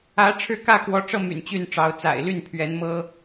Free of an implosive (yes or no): yes